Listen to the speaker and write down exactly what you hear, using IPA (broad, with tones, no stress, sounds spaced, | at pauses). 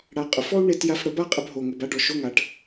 ɽ a˨ qʼ ʊ˨ f ɔ˦ u̯ ɳ e˧ t j a˧ f ɽ ə˨˦ b a˦ qʼ ə˧ b ɦ o˨ ŋ ʊ˨ b a˦ ɖ ɔ˨ ʃ o˦ ŋ a˧ ʈ